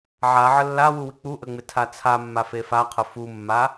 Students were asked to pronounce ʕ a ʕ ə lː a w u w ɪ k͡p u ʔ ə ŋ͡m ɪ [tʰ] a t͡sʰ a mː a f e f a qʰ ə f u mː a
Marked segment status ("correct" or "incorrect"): correct